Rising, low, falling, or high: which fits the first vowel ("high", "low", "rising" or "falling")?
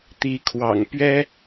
rising